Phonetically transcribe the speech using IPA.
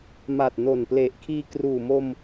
ma˨˩t̚no˨˩nple˨˩ʔkʰiː˧ kruː˨˩mo˧m

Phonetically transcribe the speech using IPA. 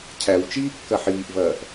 cʰæw t͡ʃiːkːɐħiːʔvɐːʔ

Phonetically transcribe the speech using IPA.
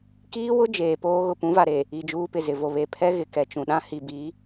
kiː˦wʊ˦ d͡ʒeː˨poː˦ ɣʊ˨pũ˨˦va˨ɾe˨ | i˨ d͡ʒuː˦pɪ˨zɪ˨vo˨ βe˨pʰɛ˦ ɣɪ˨kɛ˨t͡ʃũ˨ɗã˦ hi˨bi˨˦

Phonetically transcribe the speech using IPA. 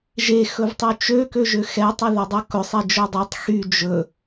ʒexɵvtˤy t͡ʃøkøʒø xɛtˤɵðødˤu kɵsˤed͡ʒɵ dˤytˤ xy d͡ʒɵ

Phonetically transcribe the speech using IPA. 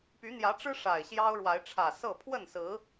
py˨˦n̪jä˨˦ʈ͡ʂɻ̩˦ ʂa˨˩ɪ̯ɕjɑ˦ʊ̯ɻwa˨˦ɪ̯ ʈ͡ʂʰä˨˩sɤ˥˨ pʰwə˥˨nsɹ̩˨˦

